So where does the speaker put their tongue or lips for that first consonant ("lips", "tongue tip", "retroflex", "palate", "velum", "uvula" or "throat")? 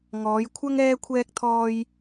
velum